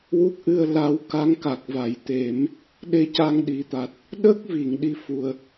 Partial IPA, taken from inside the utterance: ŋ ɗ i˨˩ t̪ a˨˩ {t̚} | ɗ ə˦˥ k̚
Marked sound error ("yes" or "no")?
no